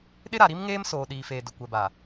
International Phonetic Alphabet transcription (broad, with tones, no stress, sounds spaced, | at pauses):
ɗ ɪ˦ ɾ a˨ ɾ i˦ m ŋ eː˦ m s oː˨ ɗ iː˨ f eː˨ d ʊ˨ kʷ ɛ˨ b a˨